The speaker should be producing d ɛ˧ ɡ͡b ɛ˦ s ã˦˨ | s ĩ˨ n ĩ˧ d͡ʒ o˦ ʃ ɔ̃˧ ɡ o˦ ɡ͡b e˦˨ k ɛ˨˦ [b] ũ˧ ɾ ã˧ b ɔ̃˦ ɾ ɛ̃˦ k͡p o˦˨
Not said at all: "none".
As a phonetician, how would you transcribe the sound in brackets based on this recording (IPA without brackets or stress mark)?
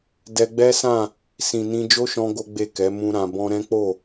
m